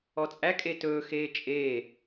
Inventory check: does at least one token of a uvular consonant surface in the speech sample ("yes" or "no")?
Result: no